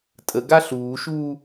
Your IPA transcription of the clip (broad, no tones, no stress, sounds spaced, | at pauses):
tʼ ə ɡ a ɬ uː ʃ uː